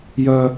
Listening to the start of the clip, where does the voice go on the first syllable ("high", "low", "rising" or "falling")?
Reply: high